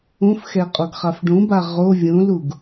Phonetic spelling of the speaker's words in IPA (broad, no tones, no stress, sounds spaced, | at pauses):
ũ f x ɛ qʼ o ɡ χ a f ɖ ũ b a ʁ o vʲ ũ l u ɡ